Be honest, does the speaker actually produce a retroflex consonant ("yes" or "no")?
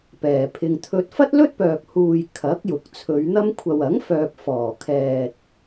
no